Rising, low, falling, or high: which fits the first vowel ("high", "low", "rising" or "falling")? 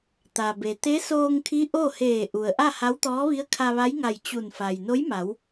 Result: low